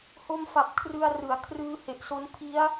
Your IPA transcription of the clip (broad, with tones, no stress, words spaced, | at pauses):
ho˧mfa˨˩p̚ kʰrɯ˧a̯rɯ˩˦a̯ kʰrɯː˧he˨˩ʔso˦˥n pʰi˦˥a̯